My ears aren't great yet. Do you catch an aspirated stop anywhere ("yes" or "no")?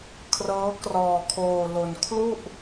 yes